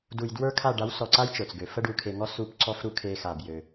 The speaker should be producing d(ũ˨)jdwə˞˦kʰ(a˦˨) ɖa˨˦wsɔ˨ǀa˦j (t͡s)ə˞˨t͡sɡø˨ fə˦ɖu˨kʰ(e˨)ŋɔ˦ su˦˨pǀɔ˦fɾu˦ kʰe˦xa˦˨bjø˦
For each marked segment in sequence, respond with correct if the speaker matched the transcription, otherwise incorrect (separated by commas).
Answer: incorrect, correct, incorrect, correct